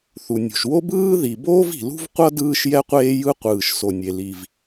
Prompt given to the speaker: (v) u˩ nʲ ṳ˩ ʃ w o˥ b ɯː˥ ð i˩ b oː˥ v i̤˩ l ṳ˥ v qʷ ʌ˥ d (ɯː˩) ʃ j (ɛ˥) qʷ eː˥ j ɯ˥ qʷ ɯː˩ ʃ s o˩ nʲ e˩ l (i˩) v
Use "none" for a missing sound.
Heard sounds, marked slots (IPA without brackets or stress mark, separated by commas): θ, ɯː˥, ɛ˥, i˩